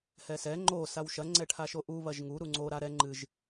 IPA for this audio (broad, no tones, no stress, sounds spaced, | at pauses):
h ɛ s ɛ ŋ͡ǃ o s a w ʃ ɐ ŋ͡ǀ ɛ ʈʰ a ʃ o ʔ u β ɐ ʒ ŋ u ɾ u ŋ͡ǀ o ɾ a ɾ ɛ ŋ͡ǃ ɨ ʒ